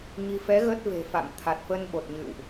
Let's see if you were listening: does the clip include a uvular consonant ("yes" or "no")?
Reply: no